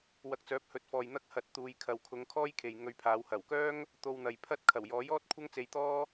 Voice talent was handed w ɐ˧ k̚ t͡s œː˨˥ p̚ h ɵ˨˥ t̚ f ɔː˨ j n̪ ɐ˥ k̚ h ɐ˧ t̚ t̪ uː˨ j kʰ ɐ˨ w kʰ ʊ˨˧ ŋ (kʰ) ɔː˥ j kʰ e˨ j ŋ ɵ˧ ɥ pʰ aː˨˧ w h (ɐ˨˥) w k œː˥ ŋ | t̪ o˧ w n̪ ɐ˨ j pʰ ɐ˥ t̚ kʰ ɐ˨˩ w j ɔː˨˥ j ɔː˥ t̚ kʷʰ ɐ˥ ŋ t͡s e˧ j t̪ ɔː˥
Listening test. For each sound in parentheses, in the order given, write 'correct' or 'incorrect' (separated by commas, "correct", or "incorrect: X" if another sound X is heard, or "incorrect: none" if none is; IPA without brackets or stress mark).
correct, incorrect: ɐ˨˩